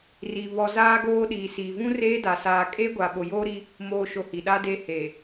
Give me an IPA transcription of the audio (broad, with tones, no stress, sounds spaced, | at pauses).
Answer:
r iː˨ β ɔ˨ z aː˦ ɡ oː˦ ɗ iː˨ s iː˨ v ũ˦ r eː˦ d a˨ s aː˨ kʼ eː˦ ɡʷ a˨ ɓ o˨ j oː˦ ɾ i˦ | m oː˨ ʃ o˨ h i˨ ɗ a˦ d eː˦ h eː˨